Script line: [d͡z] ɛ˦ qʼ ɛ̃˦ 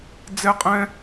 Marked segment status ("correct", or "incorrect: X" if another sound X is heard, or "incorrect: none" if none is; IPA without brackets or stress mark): correct